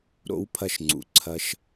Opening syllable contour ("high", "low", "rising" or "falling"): rising